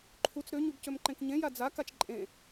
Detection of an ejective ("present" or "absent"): present